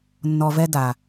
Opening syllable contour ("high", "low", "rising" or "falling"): low